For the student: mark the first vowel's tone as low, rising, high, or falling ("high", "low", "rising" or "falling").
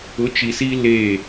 rising